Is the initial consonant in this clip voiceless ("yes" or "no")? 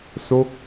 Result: yes